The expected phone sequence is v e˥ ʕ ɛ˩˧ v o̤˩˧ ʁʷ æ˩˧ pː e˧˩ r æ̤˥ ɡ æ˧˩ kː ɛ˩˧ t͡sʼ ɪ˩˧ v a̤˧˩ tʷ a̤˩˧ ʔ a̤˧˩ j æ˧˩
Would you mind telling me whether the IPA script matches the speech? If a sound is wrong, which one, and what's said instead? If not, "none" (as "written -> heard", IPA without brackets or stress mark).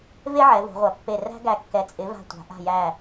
none